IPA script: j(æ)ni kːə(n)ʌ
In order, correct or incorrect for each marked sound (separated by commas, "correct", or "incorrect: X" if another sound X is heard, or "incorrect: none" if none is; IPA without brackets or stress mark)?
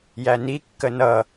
correct, correct